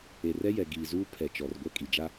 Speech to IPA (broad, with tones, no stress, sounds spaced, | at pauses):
e˨ r ɛ˦ j ɛ˨ ɡ iː˨ z uː˦ pʰ ɛ˨ t͡ʃ ɔ˨ r ɡʷ ɛ˦˨ kʼ i˨ d͡ʒ a˦